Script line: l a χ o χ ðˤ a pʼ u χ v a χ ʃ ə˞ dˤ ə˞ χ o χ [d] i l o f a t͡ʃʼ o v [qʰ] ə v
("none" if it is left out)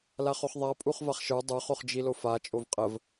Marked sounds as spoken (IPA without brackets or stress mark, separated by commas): d͡ʒ, qʼ